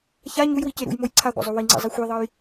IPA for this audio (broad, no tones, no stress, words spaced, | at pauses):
ça ɲujwice ɾṵjmoj ǀʰaɡʷa̰zˤo wiŋ͡ǀḛzˤi xʷiðˤʌj